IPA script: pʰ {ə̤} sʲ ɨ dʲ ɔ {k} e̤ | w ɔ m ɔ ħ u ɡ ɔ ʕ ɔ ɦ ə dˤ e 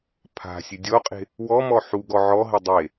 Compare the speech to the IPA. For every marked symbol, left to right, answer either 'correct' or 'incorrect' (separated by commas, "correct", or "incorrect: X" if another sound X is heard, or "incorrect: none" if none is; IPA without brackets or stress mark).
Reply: incorrect: a̤, incorrect: qʼ